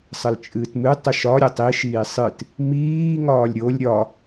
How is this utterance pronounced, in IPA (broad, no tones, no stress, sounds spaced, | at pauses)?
sˤ ə l t͡ʃʼ ɨː t m ɨ tˤ ə ʃ ɒ ɾʲ ə tˤ i ʃ iː sˤ ɨ t | m iː ŋ ɒː lʲ ɾʲ o lʲ ɾʲ ɒ